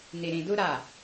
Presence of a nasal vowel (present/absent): present